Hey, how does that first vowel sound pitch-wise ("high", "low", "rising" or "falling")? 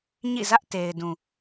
falling